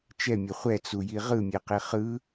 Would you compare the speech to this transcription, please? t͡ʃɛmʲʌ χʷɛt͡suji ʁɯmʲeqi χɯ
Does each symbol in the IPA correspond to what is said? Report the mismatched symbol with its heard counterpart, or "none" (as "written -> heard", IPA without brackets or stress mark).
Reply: none